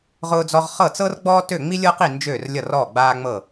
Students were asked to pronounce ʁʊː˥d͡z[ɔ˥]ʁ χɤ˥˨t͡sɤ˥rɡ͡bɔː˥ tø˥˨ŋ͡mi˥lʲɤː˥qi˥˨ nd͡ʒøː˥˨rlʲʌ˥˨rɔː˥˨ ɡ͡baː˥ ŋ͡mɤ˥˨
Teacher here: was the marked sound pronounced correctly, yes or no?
yes